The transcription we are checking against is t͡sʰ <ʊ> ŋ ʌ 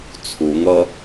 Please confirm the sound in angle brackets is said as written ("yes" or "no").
no